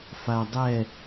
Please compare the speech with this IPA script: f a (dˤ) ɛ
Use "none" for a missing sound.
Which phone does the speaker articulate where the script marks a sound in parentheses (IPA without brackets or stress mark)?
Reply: dˤ